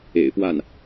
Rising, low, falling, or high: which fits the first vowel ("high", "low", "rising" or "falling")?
low